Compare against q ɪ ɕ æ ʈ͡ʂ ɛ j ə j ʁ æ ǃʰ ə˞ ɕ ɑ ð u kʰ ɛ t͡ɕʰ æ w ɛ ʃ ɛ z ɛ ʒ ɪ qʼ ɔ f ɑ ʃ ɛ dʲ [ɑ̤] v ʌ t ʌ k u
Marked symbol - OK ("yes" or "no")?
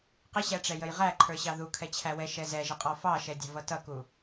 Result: yes